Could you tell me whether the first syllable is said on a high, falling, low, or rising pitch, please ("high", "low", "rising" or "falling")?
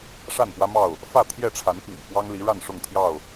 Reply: falling